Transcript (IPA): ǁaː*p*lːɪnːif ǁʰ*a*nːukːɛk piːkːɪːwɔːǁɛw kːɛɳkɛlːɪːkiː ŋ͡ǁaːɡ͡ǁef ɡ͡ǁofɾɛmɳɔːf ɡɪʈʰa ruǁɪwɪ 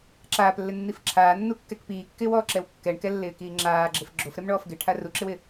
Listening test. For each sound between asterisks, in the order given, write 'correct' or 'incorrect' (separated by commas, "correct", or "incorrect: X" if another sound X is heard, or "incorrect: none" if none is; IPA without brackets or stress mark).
correct, incorrect: aː